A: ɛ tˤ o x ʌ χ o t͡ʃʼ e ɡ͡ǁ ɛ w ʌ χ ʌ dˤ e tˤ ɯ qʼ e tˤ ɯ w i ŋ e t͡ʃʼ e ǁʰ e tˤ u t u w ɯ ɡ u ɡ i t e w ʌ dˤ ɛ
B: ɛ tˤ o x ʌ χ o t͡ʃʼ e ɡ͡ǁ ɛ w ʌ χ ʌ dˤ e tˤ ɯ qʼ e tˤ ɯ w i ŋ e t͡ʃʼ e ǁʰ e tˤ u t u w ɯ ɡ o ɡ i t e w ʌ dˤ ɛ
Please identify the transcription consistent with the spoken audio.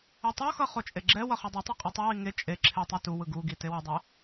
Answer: A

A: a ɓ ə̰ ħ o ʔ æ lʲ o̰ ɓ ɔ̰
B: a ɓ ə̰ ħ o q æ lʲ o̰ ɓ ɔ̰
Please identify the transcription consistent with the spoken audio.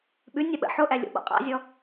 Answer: A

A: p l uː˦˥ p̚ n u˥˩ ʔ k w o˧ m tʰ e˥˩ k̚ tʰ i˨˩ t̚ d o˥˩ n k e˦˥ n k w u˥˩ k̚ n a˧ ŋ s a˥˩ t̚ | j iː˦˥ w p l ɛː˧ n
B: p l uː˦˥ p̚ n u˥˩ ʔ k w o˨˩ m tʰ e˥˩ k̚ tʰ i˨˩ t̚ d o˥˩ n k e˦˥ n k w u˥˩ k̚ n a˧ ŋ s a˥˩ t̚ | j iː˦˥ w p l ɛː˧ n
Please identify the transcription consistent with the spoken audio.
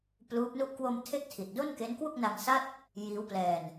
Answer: A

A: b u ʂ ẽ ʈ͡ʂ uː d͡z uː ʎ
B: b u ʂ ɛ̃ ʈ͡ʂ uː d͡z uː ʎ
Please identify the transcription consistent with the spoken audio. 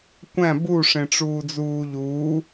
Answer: A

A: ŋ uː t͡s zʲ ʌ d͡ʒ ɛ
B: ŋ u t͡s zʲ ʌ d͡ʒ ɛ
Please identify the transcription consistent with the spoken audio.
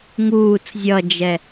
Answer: A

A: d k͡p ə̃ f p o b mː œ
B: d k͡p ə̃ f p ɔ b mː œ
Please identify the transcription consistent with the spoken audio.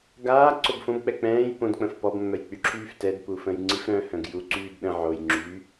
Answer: B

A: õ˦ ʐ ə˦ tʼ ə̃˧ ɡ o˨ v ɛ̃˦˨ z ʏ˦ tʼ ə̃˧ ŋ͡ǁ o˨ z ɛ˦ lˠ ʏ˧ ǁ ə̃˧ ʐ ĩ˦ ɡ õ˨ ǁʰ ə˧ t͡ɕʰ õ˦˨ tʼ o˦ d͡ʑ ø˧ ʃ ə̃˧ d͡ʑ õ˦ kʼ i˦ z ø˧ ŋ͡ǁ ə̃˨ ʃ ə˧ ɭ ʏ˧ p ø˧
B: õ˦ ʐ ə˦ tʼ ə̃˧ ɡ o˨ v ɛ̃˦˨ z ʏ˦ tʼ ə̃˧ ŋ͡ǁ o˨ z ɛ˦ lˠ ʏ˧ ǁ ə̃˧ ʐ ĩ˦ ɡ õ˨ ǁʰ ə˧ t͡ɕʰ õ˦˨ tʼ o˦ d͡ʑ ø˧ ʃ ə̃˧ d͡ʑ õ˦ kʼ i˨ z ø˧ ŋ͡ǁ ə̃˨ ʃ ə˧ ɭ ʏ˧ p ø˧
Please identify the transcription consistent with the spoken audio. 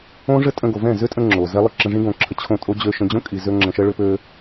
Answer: B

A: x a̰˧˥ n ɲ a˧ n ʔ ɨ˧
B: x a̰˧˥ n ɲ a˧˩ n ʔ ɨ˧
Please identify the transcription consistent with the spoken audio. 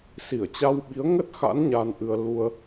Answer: A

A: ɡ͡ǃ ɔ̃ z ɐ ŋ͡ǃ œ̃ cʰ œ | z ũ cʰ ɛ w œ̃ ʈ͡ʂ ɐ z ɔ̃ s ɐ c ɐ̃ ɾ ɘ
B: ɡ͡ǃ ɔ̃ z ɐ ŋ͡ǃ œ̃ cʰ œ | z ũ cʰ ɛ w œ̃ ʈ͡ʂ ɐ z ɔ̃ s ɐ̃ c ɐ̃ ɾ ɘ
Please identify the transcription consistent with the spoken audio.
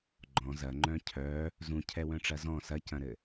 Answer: A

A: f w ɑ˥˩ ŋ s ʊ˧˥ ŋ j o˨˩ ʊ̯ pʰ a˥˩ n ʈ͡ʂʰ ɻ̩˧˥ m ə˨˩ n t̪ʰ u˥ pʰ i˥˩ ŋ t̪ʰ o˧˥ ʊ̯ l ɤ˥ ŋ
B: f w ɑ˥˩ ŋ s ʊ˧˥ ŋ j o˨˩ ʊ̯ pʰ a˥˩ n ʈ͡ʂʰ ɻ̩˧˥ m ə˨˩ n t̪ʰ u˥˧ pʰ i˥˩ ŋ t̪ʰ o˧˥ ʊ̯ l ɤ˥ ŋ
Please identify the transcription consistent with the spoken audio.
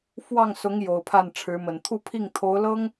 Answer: B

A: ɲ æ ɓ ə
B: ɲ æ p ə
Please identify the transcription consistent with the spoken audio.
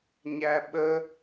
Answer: A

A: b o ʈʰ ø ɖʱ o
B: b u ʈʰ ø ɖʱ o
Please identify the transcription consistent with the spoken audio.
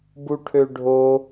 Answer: B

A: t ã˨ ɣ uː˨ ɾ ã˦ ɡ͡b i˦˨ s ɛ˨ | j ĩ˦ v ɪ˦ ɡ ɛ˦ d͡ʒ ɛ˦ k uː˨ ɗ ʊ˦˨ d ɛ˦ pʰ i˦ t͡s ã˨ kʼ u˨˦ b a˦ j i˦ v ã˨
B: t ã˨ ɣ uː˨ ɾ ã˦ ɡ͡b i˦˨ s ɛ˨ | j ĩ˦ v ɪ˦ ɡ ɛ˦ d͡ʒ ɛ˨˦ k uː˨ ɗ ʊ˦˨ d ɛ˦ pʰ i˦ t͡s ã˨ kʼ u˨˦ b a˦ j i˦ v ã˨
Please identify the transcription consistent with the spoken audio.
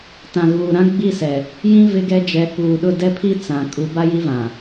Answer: B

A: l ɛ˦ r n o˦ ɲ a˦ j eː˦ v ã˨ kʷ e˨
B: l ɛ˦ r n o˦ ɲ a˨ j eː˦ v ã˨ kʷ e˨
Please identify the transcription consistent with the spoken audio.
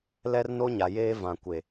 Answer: B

